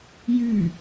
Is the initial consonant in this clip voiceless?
no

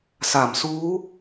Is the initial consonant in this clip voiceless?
yes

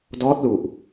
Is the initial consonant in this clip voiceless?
no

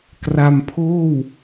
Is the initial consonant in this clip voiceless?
yes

